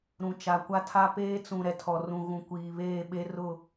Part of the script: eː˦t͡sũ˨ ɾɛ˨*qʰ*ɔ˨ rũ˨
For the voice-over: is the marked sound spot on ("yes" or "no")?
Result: no